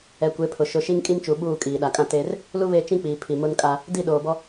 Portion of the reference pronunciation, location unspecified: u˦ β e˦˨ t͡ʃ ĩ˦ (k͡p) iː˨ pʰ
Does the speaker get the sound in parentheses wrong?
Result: no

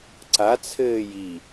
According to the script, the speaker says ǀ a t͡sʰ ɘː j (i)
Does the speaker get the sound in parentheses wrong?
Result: no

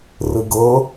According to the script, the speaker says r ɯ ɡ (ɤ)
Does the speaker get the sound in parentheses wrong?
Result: no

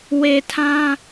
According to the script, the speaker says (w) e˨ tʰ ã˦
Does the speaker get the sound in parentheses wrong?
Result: no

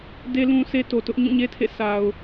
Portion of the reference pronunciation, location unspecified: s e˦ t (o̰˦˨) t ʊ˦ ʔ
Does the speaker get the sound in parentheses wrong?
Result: yes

